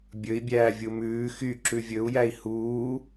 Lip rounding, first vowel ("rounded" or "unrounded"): rounded